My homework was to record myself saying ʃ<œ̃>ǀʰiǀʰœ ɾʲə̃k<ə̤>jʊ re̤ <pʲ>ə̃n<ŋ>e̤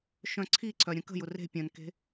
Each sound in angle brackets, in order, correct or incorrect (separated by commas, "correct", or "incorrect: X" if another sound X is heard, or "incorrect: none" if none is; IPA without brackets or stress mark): correct, correct, correct, incorrect: k